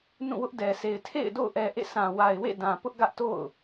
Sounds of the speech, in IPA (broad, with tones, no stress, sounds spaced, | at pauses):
n ũ˦˨ w ʊ˦ ʔ d ɛ˨ s e˨ ɪ̯ tʰ ḛ˦˨ ɪ̯ d o̰˦˨ ʊ̯ ʔ ɛ˨ ʔ ḛ˦˨ sʰ ã˨ w a˨ ɪ̯ w ḛ˦˨ d ã˨ p ʊ˦ ʔ ɡ ä˦ ʔ t o̰˦˨ ʊ̯